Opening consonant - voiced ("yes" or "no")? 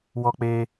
yes